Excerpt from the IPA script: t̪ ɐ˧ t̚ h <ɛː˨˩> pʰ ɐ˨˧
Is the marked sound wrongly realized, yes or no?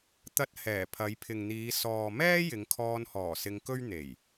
no